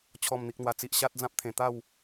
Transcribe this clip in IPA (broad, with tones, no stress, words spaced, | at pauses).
t͡ɕʰɔ˨˩mn̪i˨k̚n̪wa˨˩t͡si˨ʔ ɕa˦t̚d͡zã˦p̚ t̪ʰẽ˨˩ t̪a˥˧w